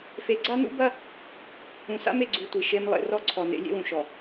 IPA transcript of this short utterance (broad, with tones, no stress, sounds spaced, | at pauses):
f e˨ ɡ͡ǀ a˦ n ṵ˦ b ɐ˦ | ũ˨ s a̰˦ m e˨ ɡ͡ǀ u˨ tʷ i˨ ʃ e˦ m lˠ ḛ˦ r ɔ˦ ǀʰ ɔ˨ n ḛ˨˦ lʲ ḛ˦ w ũ˨ ʃ ɔ˨